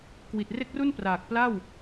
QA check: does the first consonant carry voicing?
no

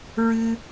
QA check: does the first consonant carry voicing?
yes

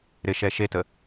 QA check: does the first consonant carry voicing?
yes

